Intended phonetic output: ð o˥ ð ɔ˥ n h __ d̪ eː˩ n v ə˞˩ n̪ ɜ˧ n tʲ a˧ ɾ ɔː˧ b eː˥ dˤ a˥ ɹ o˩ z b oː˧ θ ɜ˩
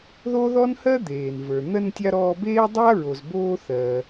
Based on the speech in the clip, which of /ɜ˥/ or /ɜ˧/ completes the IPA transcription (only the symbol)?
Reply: ɜ˥